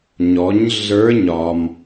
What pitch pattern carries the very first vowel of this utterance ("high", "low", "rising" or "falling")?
rising